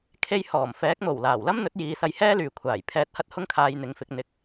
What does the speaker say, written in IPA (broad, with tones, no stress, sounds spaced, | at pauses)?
kʰ e˧ j h ɔː˨˩ m f ɛː˨˥ k̚ m o˨˩ w l aː˨˩ w l ɐ˥ m n̪ ɵ˨˥ t̚ j iː˨˧ s ɐ˧ j h ɛː˥ l yː˨ kʷʰ aː˨˩ j pʰ ɛː˧ t̚ h ɐ˥ t̚ h ʊ˥ ŋ kʰ aː˧ j n̪ ɪ˨ ŋ f ɪ˧ k̚ n̪ ɪ˧ k̚